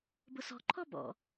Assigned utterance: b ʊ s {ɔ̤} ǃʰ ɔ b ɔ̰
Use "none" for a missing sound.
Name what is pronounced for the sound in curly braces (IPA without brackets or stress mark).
ɔ̤